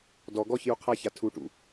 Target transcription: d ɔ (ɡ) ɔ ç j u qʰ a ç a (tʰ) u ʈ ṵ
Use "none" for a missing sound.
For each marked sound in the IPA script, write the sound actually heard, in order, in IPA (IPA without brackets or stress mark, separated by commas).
ɡ, tʰ